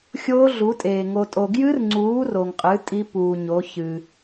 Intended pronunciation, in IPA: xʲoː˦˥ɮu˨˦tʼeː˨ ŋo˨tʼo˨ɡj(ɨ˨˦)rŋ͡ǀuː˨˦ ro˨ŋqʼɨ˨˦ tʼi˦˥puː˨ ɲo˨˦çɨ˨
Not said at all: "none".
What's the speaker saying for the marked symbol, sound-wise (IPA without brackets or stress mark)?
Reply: ɨ˦˥